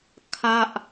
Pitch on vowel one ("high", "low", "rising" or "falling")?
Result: falling